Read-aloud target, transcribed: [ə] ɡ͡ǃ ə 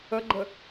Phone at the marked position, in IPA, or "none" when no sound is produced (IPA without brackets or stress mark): ə